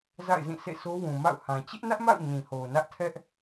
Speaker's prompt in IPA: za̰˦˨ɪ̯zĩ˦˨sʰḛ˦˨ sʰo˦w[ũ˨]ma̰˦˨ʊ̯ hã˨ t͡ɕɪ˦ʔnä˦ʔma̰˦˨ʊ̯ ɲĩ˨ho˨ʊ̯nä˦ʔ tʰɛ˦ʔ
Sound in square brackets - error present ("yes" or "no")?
no